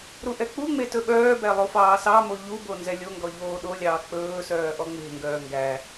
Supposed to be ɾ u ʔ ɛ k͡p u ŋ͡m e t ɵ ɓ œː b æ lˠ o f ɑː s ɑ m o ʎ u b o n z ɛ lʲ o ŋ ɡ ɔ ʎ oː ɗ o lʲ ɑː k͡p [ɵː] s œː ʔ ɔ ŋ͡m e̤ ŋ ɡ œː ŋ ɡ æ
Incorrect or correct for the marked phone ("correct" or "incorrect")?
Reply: correct